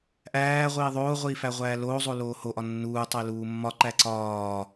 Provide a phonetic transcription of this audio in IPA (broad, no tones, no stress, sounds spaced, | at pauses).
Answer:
ʔ æː ʁʷ iː ðˤ oː ʁʷ iː f æ ʁʷ æː l oː zˤ o l oː h o ʔ ɒ nː uː tˤ e l uː mː ɒ ǃ æ ǀ ɒː